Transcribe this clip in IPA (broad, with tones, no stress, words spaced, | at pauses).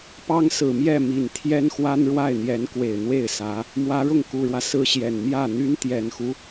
pɑ˥ŋsɹ̩˨˩mjɛ˥˩ mi˨˩n t̪ʰjɛ˥nxwa˥nɻwa˥˩ɪ̯n̪jɛ˧˥n kwe˨˩ɪ̯n̪we˥˩ɪ̯sä˧˥ | mwä˧˥ɻʊ˥˩ŋku˨˩ɻwä˦ sɹ̩˥ɕjɛ˨˩n mjä˥˩ n̪y˥nt̪jɛ˨˩nxu˦